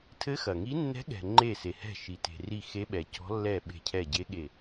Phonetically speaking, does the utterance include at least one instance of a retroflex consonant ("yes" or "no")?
no